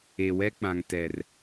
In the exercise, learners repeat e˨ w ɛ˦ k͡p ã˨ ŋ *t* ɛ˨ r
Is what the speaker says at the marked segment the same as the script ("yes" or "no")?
yes